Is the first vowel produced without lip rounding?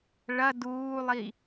yes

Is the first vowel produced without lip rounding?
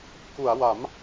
no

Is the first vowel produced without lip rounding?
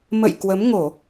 yes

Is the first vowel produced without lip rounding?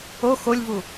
no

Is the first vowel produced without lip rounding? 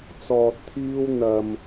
no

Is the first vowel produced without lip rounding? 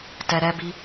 yes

